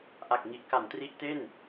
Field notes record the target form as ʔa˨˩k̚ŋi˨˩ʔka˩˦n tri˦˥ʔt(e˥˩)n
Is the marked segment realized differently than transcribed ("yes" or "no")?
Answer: no